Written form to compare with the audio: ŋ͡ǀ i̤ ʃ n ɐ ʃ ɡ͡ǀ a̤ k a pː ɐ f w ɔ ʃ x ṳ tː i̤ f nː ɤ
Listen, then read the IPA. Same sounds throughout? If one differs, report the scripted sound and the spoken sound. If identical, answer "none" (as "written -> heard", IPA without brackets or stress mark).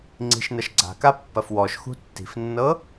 none